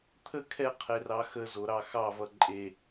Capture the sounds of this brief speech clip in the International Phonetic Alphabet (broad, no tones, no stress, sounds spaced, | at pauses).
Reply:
t̪ʰ ə kʰ ɛ qʰ e r ɑ x ə z o ɾ ɑ x ɑ v ʌ ǃʼ e